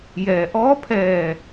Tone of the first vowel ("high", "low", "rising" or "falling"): low